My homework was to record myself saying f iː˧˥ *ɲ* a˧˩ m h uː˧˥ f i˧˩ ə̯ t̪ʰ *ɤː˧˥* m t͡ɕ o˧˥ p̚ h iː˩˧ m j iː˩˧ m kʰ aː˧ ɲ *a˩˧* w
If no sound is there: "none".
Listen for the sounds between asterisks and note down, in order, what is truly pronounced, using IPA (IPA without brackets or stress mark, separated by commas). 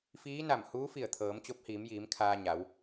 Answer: n, ɤː˩˧, a˩˧